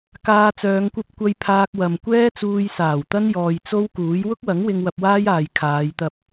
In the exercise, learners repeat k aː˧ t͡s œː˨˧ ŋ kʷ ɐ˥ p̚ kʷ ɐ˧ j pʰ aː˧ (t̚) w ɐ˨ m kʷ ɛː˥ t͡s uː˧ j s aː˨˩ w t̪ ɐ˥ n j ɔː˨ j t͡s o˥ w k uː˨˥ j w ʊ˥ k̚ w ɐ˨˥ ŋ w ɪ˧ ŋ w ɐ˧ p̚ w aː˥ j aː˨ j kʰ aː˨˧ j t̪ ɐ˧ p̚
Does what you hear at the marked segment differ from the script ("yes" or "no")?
yes